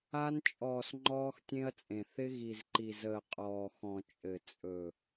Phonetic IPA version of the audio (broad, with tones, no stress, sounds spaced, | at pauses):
a˦ n t͡ʃʼ ɔː˨ s ŋ͡ǃ ɔː˦ x tʲ ẽ˦ ɐ̯ t͡sʼ ẽ˨ θ ɪ˦ ɣ i˨ z ǃ i˨ z əː˨ qʼ ɔː˨ x ɔ̃˨ t͡ʃʼ ɘ˨ t͡sʼ ɵ˨